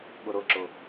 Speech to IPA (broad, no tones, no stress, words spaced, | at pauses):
ɠʊɾʊǁʊ